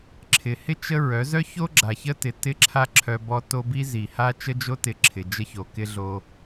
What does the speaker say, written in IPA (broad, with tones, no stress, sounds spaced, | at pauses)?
ǁʰ ɪ˨ h ɪ˦ t͡ʃ ə˦ ɹ œ˨˦ z œ˦ ç o˦ ɡ͡ǁ a˨ ç ə˦ t ɪ˨ t ɪ˦˨ ǁʰ a˦ ǁʰ œ˦ b ɔ˦ t o˦ b i˦ z i˨ h a˦ t͡ʃ ə˦ d͡ʒ o˦ t ɪ˨˦ ǁʰ ɪ˨ d͡ʒ ə˦ ç o˨ k ɪ˦ ɮ o˦